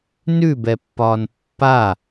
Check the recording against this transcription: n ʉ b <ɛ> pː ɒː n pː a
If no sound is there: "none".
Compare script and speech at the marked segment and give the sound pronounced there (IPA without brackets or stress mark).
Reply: ɛ